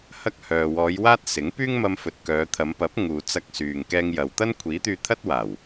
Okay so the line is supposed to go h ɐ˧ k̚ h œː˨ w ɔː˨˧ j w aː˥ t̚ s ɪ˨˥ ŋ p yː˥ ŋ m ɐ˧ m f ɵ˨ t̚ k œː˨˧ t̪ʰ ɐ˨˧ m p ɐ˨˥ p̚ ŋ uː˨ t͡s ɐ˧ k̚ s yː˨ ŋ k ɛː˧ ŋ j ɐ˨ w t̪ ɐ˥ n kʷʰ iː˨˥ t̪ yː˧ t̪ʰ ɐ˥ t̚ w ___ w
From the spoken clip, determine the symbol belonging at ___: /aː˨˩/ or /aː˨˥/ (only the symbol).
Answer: aː˨˩